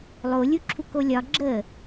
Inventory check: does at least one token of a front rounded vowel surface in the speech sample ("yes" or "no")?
no